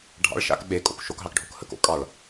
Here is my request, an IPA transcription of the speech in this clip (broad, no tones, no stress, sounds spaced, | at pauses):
ɖʱ ɑ̰ ɭ ʃ a̰ k ɓ e kʼ o̰ k ʃ o k ɦ ɑ k ɖʱ o k h ə k o̰ kʼ ɑ ɭ